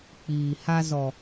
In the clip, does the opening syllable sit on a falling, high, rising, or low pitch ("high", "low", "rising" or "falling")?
low